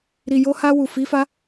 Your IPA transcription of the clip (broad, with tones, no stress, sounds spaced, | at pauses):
ɾ i˨ j o˧ h a˧ w u˨ f i˨˦ f a˦